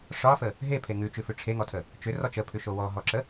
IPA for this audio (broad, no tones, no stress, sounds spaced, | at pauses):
ʂ ɒ f ə | ɦ e pʰ e ŋ ʉ t͡ʃ ʉ f ʉ ʈ͡ʂʰ e ŋ ɔ tʰ ə | t͡ʃ ʏ r ɔ t͡ʃ ə pʰ ʉ ʃ o w ɔ ɦ ɔ ǁ ə